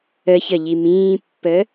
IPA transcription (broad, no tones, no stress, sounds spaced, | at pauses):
ə ç ə ʎ i m ĩː pː ə